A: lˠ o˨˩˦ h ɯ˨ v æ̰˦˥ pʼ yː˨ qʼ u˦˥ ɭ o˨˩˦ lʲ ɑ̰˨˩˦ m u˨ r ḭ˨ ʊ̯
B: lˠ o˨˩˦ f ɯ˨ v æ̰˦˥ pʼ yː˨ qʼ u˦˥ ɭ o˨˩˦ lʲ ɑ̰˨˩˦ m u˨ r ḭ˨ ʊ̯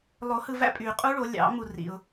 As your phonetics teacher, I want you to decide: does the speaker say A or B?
A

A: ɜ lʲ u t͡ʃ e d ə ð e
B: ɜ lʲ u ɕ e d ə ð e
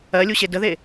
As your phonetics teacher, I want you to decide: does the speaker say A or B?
B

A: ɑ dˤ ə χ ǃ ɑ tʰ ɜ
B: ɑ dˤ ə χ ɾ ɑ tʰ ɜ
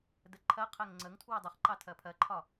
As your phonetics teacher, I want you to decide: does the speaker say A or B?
A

